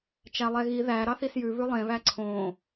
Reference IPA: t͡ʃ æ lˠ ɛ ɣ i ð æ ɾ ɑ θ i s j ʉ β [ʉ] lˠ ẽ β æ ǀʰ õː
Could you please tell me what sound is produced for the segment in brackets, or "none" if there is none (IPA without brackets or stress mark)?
ʉ